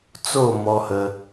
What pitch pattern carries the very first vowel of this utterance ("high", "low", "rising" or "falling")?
falling